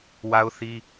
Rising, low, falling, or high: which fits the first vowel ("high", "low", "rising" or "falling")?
high